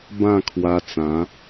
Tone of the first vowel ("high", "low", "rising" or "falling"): falling